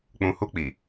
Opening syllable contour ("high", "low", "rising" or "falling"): low